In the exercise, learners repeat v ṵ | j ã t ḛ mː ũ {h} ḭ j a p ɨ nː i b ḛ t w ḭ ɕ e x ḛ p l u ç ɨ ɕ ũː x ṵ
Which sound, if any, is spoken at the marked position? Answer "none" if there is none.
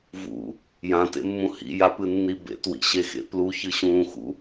h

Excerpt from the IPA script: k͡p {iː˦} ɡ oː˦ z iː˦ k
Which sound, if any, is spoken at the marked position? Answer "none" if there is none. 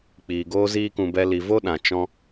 iː˨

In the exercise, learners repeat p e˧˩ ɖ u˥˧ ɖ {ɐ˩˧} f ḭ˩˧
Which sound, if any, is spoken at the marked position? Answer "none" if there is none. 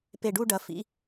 ɐ˩˧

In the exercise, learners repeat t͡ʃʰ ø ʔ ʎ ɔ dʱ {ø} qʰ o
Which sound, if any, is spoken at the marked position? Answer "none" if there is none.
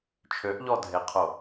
e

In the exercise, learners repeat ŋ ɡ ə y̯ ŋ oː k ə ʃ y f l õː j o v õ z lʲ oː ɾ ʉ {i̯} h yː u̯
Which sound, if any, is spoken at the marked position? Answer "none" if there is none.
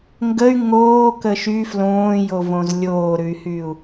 y̯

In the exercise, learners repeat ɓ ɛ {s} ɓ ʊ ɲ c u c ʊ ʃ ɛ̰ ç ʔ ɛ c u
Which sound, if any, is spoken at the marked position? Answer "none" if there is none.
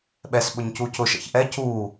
s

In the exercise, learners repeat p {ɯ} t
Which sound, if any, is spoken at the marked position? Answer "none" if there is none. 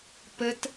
ə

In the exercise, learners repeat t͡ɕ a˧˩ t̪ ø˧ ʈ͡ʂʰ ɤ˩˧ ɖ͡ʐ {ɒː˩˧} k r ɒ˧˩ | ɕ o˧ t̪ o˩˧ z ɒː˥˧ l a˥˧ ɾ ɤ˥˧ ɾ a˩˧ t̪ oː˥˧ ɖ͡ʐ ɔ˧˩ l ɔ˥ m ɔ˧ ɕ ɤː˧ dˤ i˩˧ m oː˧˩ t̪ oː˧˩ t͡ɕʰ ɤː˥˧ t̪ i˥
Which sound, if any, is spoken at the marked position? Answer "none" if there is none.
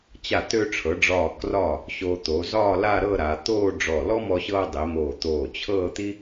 ɒː˧˩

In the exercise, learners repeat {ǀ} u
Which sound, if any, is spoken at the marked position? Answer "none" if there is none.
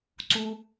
ǀ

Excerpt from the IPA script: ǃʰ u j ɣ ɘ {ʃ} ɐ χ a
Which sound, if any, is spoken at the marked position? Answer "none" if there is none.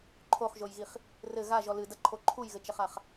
t͡ʃ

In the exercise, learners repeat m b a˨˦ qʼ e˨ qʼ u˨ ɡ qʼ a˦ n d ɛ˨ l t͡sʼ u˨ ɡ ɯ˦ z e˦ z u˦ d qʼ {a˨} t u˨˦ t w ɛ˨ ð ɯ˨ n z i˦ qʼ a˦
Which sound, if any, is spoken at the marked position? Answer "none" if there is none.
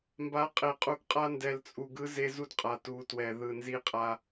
a˨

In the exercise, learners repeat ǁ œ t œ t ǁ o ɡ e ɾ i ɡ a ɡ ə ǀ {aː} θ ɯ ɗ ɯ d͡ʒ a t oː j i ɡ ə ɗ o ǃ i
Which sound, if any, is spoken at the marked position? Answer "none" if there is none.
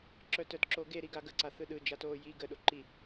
a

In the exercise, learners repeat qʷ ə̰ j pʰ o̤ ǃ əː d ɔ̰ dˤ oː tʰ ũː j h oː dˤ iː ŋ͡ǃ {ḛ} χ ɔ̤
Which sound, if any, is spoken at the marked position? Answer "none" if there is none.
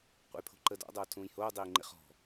ḛ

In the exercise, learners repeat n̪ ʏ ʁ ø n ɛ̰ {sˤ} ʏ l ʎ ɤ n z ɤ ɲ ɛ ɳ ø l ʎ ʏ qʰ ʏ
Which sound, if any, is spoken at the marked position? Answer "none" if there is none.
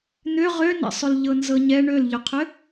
sˤ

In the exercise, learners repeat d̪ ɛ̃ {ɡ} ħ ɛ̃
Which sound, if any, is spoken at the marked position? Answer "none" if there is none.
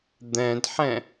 d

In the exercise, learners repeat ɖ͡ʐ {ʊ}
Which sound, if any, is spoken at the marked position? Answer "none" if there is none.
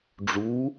u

